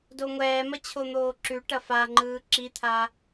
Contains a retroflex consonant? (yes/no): yes